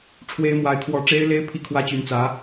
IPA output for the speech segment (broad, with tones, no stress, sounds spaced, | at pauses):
ʈ͡ʂʰ w e˥ ɪ̯ m w a˧˥ ɪ̯ kʰ w ɔ˧˥ ʈ͡ʂ e˥ ɪ̯ l e˥ ɪ̯ pʰ i˥˩ kʰ w ä˥ t͡ɕ y˧˥ n t͡s ä˧˥